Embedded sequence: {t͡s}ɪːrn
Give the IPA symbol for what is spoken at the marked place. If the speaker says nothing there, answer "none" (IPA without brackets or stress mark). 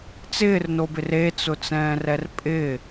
t͡s